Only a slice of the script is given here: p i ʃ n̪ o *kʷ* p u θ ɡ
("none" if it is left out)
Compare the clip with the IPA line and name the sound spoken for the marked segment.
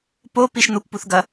kʷ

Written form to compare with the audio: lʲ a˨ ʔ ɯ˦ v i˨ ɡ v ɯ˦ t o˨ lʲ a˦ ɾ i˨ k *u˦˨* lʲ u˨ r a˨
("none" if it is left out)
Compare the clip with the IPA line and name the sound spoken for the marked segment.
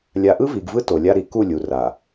u˦˨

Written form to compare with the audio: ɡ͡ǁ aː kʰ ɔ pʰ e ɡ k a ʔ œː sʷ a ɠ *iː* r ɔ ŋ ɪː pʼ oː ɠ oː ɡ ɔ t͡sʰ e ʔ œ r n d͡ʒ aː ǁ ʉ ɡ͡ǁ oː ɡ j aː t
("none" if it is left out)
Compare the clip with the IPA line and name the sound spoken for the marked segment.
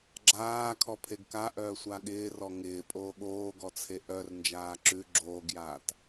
ɪː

